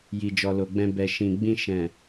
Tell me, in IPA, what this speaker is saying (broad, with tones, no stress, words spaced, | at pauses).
ji˨d͡ʒɔ˨lo˨ɡ͡bɛ̃˧ bɛ˨ʃĩ˨ɡ͡bĩ˧ ʃɛ̃˨